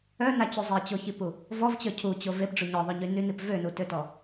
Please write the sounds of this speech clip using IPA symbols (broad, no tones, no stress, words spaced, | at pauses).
œnat͡ɕu zˤet͡ɕoçipu | vɔvt͡ɕœ cʰut͡ɕov epɖ͡ʐu ɲɔðˤoɲy nynip vønutøtɔ